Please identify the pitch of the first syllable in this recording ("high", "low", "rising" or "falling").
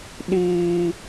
high